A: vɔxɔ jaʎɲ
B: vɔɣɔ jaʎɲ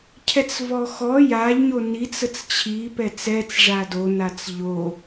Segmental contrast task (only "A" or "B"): A